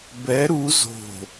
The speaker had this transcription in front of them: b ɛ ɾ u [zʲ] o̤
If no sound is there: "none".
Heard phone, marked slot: z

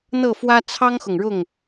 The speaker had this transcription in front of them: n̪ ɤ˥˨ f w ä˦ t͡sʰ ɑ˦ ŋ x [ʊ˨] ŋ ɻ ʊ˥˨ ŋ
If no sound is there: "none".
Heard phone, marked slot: ʊ˨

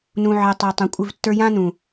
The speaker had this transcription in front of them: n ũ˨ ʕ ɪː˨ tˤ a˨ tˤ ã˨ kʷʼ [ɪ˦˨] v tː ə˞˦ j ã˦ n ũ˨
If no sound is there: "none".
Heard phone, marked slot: ɪ˦˨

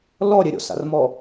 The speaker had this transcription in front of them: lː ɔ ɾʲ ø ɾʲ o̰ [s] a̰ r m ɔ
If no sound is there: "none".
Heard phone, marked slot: s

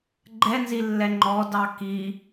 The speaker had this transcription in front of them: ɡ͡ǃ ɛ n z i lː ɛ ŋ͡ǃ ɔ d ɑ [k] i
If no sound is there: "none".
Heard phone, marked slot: k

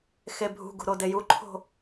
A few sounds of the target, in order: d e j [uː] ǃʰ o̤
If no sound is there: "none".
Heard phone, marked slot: u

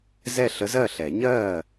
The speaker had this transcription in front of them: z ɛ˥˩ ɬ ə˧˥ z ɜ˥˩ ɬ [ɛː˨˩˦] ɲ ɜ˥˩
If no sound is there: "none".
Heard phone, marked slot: ɛ˨˩˦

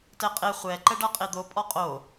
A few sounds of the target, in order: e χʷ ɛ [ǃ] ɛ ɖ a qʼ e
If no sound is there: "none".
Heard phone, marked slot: ǃ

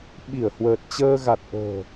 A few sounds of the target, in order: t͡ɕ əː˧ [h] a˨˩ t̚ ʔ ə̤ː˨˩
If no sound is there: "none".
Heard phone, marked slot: ɣ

